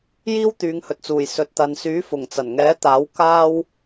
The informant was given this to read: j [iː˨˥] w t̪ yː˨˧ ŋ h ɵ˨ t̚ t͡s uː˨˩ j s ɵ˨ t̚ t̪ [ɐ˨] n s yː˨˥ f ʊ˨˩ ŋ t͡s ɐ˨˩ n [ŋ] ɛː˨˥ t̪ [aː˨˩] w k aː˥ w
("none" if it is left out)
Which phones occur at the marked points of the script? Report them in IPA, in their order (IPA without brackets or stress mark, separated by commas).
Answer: iː˥, ɐ˨, ŋ, aː˨˥